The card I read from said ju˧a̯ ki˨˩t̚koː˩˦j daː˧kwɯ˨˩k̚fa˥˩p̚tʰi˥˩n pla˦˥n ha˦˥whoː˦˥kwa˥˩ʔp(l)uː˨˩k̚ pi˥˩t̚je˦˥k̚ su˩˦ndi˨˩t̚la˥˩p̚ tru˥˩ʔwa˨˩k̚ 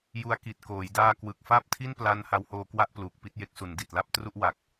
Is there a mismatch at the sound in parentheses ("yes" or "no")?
no